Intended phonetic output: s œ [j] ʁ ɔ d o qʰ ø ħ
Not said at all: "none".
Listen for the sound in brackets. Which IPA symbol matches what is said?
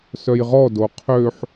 j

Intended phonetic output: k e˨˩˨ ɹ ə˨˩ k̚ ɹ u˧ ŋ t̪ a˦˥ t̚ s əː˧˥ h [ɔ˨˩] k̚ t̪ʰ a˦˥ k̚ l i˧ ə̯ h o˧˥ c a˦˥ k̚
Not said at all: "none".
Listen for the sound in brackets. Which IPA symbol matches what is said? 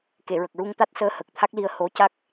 ə˨˩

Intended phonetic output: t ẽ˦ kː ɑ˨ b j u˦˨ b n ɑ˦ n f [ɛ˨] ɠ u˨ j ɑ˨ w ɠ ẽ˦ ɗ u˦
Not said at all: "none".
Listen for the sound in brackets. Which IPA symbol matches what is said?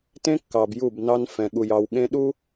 ɛ̃˨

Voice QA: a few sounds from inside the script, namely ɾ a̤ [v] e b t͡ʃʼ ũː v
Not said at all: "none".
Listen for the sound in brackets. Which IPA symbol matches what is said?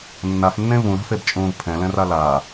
f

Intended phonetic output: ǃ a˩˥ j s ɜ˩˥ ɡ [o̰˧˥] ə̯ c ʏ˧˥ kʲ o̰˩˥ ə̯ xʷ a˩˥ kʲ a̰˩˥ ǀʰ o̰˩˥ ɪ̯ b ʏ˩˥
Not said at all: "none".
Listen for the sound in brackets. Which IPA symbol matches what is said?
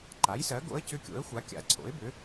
o̰˧˥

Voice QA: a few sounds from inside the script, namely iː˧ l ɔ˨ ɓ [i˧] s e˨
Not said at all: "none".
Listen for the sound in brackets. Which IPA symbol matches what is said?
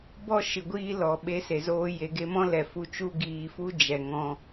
e˧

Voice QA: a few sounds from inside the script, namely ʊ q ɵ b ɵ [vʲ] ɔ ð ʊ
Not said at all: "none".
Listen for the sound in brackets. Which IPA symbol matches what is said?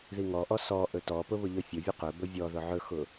vʲ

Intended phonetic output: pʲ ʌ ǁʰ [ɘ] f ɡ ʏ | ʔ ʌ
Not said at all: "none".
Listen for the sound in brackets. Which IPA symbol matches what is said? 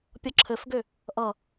ɘ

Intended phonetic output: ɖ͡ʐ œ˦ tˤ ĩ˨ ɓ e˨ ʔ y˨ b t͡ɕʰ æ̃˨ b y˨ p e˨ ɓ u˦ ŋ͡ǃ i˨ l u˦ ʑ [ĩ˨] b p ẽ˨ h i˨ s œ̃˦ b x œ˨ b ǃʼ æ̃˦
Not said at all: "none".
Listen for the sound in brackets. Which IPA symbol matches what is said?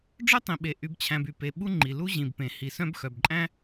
ĩ˨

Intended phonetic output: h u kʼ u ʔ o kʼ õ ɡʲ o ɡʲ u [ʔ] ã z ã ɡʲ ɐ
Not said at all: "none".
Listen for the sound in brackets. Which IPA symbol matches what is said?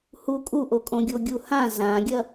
h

